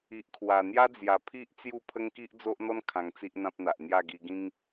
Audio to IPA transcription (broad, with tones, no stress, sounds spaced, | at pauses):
i˨ ʔ kʰ w a˨˩ n̪ j a˦ d͡z j a˨˩ pʰ i˦ ʔ t͡s j u˥˧ pʰ ə˦ ŋ k i˦ ʔ d͡z o˦ ʔ n̪ ɔ˦ n kʰ ã˧ ŋ t͡s i˦ ʔ n̪ ã˦ p̚ n̪ a˨ ʔ n̪ j a˥˧ ɡ i˧ ɡ ĩ˦ ŋ